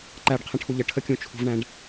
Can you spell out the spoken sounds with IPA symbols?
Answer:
ǃæɖqʰə̃ʈʰu ʎəʈʰəkʲũ t͡ʃʰṳvɳæ̃ɖ

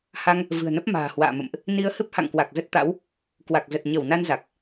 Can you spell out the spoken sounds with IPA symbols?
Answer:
ha˧ŋ | vɨ̤˨˩ə̯nə˦˥p̚ma̤ː˨˩ hwa̰ː˧˨ mə̰˧˨mʔ | ni˧ə̯hɨ˦˥p̚ ha̰˧˨ŋkwa˨˩k̚ zə˦˥t̚t̪a̰˧˥w | kwa˨˩k̚zə˨˩t̚ ɲə˧˩w na˧nza˨˩k̚

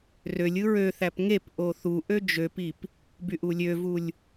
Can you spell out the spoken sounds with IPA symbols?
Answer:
rølʲ ɯɹøθæp ŋep ʔoθu ʔød͡ʒøpip | byʔulʲøvulʲ

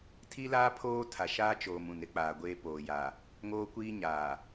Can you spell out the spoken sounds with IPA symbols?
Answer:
tʰi˦laː˦ pʰoː˦tʰa˨ʃaː˦t͡ʃoː˨m ũ˨nɾɪ˦k͡paː˨ɡʷeː˦ poː˨jaː˨ | ŋoː˦kʷiː˦ɲaː˨

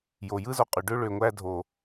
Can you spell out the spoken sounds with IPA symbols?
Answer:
jo˨jɯ˦zo˧qʼy˨ ɖø˧ɭø˨ŋʷæ˧ dʱo˨

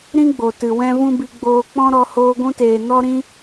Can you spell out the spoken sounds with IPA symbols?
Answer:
ɾĩ˦ɡ͡bo˨ tɨ˨wɛ̃˦vũ˦ bi˧ɡ͡boː˧k͡pɔ̃˦ ɾɔ˧ hoː˧ɡʷũ˧teː˨ nɔ˦ɾĩ˦

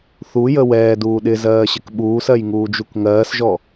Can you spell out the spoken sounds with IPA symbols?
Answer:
θujə wɛːduː ɗɪ zɜːɕɪkɓuːsɜj ŋuːd͡ʒukŋɜːsʒɔ

